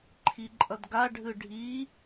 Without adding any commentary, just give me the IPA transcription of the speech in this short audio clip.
ǃʰ i ǃʼ ʌ d ɡ a ɖʱ ɯ ɖʱ i

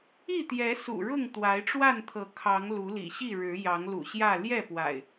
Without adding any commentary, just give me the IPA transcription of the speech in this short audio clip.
i˥˨ t̪ j ɛ˨˦ s ṵ˨˩ ɻ ʊ˥˨ ŋ t̪ w a˨˦ ɪ̯ ʈ͡ʂ w a˥˨ n t̪ʰ ɤ˨˦ kʰ ɑ˨˦ ŋ l u˨˦ l ḭ˨˩ ɕ i˥˨ ɻ ɻ̩˨˦ j ɑ˨˦ ŋ l ṵ˨˩ ɕ j ä˥˨ l j ɛ˥˨ p w a̰˨˩ ɪ̯

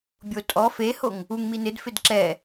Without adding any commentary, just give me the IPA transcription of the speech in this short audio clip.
bʲ o tʼ ɔ f e h o ŋ | u ŋ m i n ɪ d f ɪ d ǁ ɛ

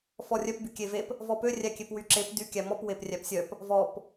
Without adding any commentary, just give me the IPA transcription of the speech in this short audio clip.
f ɔ rʲ œ p b y kʲ e v e p | v ɔ p ø rʲ æ kʲ e p w y ǁ e p d y kʲ æ m ɔ p w e p rʲ æ p sʲ œ p | v ɔ p

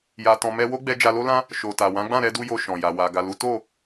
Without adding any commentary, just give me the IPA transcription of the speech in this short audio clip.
j a˧ t ɔ̃˧ m ɛ˦ w o˦ ɡ͡b ɛ˧ d͡ʒ a˧ l o˦ l ã˦ | ʃ o˨ t a˨ w ã˨˦ ɡ͡b ã˦˨ ɾ ɛ˧ d u˧ j o˧ ʃ ɔ̃˨ j a˨ w a˨ ɡ a˨ l u˨˦ t o˦˨

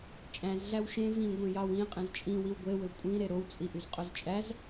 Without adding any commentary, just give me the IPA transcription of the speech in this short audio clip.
t͡ʃʼ æ̃ z ɮ æ w ʃ ẽ v ĩ ɡʷ ẽ j ɑ w ĩ qʼ ẽ z t͡ʃʼ ĩ w i w ɡʷ e w ø kʷʼ ĩ ɾ e ɾ o w t͡sʼ i ʔ y z qʼ o z t͡ʃʼ æ z

